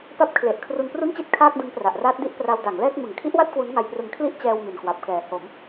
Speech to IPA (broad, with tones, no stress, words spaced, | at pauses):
pa˦˥p̚kʰle˨˩ʔ kʰru˧npru˥˩nt͡ɕi˥˩t̚ kʰaː˥˩k̚dɯ˦˥ŋpra˨˩ʔraː˦˥t̚ di˥˩ʔpra˧w da˩˦ŋlɛː˥˩k̚ mɯ˩˦ŋkʰi˦˥ʔwa˥˩t̚ kwu˦˥nŋa˧jprɯ˧ŋ kʰli˥˩ʔ t͡ɕɛː˧w mi˨˩nkwa˨˩p̚kɛː˨˩ ho˩˦m